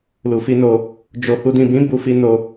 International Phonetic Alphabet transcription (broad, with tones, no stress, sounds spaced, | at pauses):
l u˨ f i˧ n o˧ | d͡ʒ o˨ h u˨ d ĩ˨ b ĩ˨˦ b u˧ f i˧ n o˧